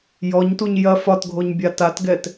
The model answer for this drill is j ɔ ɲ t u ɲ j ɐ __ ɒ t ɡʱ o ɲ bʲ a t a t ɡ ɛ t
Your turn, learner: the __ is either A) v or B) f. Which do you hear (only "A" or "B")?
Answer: B